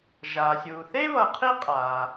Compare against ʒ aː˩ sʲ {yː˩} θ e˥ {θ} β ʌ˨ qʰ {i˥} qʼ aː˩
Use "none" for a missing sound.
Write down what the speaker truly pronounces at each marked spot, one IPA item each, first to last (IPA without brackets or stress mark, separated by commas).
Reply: uː˩, none, i˥